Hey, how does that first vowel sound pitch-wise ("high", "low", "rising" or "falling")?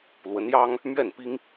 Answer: rising